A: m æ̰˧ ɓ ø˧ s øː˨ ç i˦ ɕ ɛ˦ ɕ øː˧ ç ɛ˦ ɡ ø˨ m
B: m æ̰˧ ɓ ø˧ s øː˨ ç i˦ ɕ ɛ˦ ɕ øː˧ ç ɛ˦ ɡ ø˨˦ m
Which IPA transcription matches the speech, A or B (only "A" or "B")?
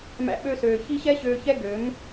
B